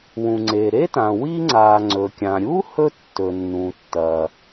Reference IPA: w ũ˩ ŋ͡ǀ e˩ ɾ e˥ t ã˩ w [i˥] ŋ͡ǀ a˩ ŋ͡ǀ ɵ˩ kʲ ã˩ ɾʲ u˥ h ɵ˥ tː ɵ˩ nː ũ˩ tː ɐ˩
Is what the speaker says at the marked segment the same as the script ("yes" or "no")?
yes